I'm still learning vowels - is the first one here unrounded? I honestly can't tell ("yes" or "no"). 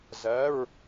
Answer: yes